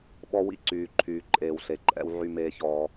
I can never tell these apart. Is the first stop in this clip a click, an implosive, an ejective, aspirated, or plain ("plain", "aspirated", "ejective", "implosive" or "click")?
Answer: implosive